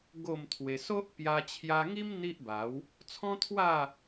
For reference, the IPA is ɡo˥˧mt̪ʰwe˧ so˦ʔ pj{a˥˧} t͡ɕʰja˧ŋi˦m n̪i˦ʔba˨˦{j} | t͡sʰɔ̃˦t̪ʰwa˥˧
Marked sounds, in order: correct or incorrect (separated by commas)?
incorrect, incorrect